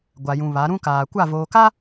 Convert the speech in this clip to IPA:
ɡʷ a˨ j ũ˨ β a˨˦ ɾ ũ˦ k aː˨ kʷ a˦˨ v oː˨ k a˦

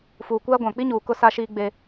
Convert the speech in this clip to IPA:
f uː˨ kʷ aː˦ ɡʷ ã˨ k͡p i˦ ɲ uː˨ k ʊ˦ s a˦ ʃ iː˦ ɡ͡b e˦

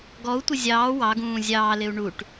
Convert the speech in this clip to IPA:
ɡ ɔ u̯ tʷ ɪ zʲ ɑː w ɑ ɡ ũː zʲ ɑː l ɪ u̯ ɳ u ʈ

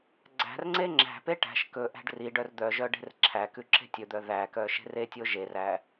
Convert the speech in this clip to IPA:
ɡ͡ǀ æ̤ r ŋ͡ǀ e ŋ͡ǁ æ̤ p e ʈ æ̤ ʃ k ɵ ʔ æ̤ ɖ r i ɖ œ r d̪ œ ʒ œ ɖ e̤ r ǁʰ æ k ʉ ǁ e̤ tʲ ɵ d̪ œ ð æ k œ ʃ e̤ r e tʲ o ʒ e r æ

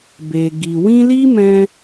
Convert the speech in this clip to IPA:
b e˨ ɡ i˨ w ĩ˧ l i˦ m ɛ̃˧

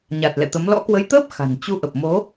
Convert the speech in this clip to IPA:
ɲ a˨˩ t̚ l ɛ̰˧˨ t̪ ə˨˦ m l ɔ̰˧˥ k w ə˨˦ j t̪ əː˦˥ p̚ x a̤˨˩ n t͡ɕ u˧ ʔ ə˨˩ p̚ m o˨˦

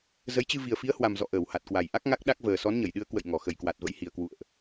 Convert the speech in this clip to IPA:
z ə˨˦ j t͡ɕ ɨ˧ v i˨˩ ə̯ f i˨˦ ə̯ h w a˨˩ m z ɔ̰˧˨ ʔ əː˧˩ w h a˨˩ t̚ k w a˨˩ j ʔ a˦˥ k̚ ŋ a˦˥ k̚ ɗ a˦˥ k̚ v əː˨˩ s ɔ˨˦ n ɲ ə˧˩ j ɗ ɨ˨˦ ə̯ k w ə̰˧˨ j ŋ ɔ˧˩ x ə˨˩ j k w a˨˩ t̚ v ə̰˧˥ j h i˨˩ ə̯ k w ṵ˧˨ ə̯ ʔ

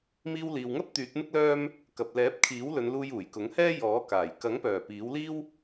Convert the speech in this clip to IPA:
m iː˧ w l iː˨ w ŋ ɐ˥ p̚ t̪ yː˨˥ t̚ m ɪ˥ k̚ l œː˥ m | k ɐ˨ p̚ l ɛː˨˥ p̚ kʰ iː˨˥ w l ɵ˨˧ n l uː˧ j uː˨˩ j k ʊ˨˥ ŋ h ɛː˥ j ɔː˨˥ k aː˨˩ j k ɐ˨˥ ŋ p œː˨˩ p iː˨˥ w l iː˥ w

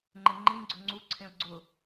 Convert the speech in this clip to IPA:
ŋ͡ǃ ɪ ŋ͡ǃ ĩ ɡ͡ǀ ʊ ŋ͡ǀ u ǀʰ ẽ ʊ̯ ɡ͡ǀ ʊ

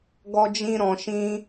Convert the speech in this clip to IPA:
ɡ ɔ˦ d͡ʒ ĩ˦ ɾ ɔ̃˧ ʃ ĩ˦

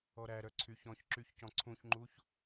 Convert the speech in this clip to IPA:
ɔ ɾ æ ɾ œ ǀʰ y ç ɔ̃ ç ǁ y ç c ɔ̃ ǀʰ ũ ç ŋ͡ǃ u ç

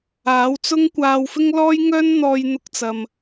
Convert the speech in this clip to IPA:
aː˨˥ w t͡s ʊ˥ ŋ kʷ aː˧ w f ɪ˥ ŋ l ɔː˥ j ŋ œː˥ n n̪ ɔː˧ j n̪ ʊ˧ k̚ t͡s ɐ˨ m

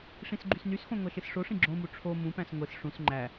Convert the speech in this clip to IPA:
ʂ ĩ s ɡ͡ǃ y s n y s x õ ŋʷ æ ʃ e s ʂ o ʂ ĩ ɡ͡ǁ õ m u ʈ͡ʂʰ o m ũ p æ̃ s ŋʷ e s ʂ ũ s ŋ͡ǃ æ

